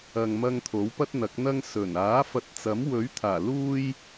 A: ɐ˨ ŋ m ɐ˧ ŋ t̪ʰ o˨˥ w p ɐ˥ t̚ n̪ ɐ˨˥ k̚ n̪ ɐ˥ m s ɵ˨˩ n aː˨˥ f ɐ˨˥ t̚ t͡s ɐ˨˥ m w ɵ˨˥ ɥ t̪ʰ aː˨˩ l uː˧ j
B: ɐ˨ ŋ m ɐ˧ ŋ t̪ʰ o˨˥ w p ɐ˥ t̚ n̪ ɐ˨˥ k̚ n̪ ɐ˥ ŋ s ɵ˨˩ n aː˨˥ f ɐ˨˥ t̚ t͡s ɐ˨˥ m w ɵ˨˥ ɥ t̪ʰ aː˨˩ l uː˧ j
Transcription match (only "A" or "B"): B